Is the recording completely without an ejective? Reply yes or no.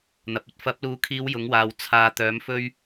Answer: yes